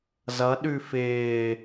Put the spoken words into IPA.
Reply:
z ʌ ɗ ʉ f ɪː

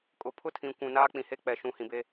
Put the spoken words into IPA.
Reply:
kʼ ʊ˨ pʰ ʊ˦ tʰ ĩ˨ kʷ ũ˨ n aː˦ k͡p ĩ˨ h e˦ k͡p ɛ˨ ʃ ũ˨ h ĩ˨ b e˦

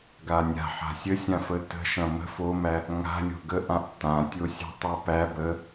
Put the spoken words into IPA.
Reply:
ɡ a nʲ a̤ ħ a̤ sʲ ə sʲ ã f ə t ə̤ ʃ ɐ̃ m ə̤ f o m æ | ŋ a̤ lʲ o̤ ɡ ə ʔ ã ʔ t ã tʲ o sʲ a̤ tˤ æ p æ b ə

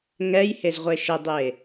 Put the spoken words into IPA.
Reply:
ŋ ɛ j h e z ʁʷ e ʃ ɪ dˤ e

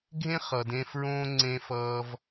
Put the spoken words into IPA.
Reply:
ɡʱ ẽ˥ χ ʌ˩ d ẽ˧ f ɹ õː˥ ŋ͡ǀ ẽ˧ f ʌː˧ v

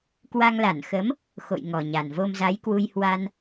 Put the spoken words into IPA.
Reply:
k w a˧ ŋ l a˧˩ n x ə˨˦ m | x o̰˧˨ j ŋ ɔ˨˩ ɲ a˨˩ n v o˧ m z a˨˦ j k w u˧ j h w a˧ n

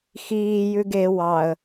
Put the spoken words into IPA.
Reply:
x iː j ʉ ɡ e w ɑ ə̯

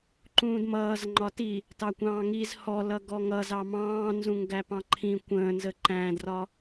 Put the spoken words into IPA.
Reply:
ǃ ũː d m ʌː z ŋ͡ǃ ɒ t i | t ɑ kʷ ɑ̃ː ŋ i z h ɔ l ʌ ɡ ɔ ŋ ʌ z ɑ m ɑ̃ː n z ũ ŋ ɡ æ p ɑ̃ ǃʰ ĩ kʷ ə̃ː n z ə ǃ æ̃ d r ɒ

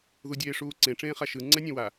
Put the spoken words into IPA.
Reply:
ð u dʲ eː ʂ uː ǀ ẽ ʈ͡ʂ ẽː χ a ʃ ɯ ŋ͡ǀ ɛ nʲ ẽ w a

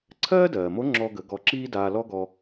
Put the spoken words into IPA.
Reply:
ǀʰ ɜː˥ d ɜː˩ m o˧˥ ŋ͡ǁ ɔ˧ ɡ ə˩˧ ɡ ɔ˧ ǁ iː˥ d aː˧ l ɔ˥ ɡ ɔ˧

